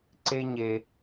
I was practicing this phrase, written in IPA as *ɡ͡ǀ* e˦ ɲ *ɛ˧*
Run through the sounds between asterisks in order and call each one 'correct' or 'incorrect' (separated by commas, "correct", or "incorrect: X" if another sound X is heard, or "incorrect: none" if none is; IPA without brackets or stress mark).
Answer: incorrect: ǀ, incorrect: e˧